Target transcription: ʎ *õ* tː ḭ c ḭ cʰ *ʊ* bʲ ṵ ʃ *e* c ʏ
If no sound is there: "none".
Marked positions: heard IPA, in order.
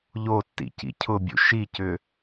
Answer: o, ʊ, i

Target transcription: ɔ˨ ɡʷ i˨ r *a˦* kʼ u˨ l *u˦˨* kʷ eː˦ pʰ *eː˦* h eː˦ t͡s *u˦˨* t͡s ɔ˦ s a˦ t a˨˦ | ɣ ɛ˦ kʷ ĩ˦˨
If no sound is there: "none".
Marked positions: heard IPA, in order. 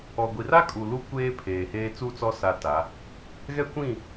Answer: a˦, u˦, eː˨, u˦˨

